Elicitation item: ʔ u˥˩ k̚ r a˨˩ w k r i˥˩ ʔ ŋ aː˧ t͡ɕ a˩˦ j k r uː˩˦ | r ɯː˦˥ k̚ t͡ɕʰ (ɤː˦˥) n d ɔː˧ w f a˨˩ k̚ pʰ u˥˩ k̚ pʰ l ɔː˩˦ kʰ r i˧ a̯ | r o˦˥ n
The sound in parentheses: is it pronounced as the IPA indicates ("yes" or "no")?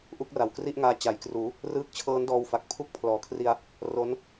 yes